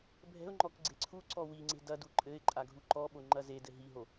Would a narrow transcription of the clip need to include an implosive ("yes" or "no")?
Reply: yes